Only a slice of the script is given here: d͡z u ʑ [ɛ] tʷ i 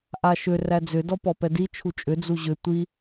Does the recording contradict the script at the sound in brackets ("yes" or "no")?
yes